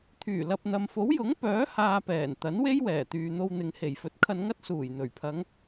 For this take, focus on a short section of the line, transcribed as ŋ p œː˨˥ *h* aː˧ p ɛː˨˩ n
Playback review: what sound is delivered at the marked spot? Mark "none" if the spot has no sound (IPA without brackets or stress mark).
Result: h